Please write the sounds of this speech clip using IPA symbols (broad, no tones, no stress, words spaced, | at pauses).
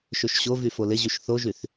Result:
ʃøʃɕovy folɪʑyʃ θoʒyθ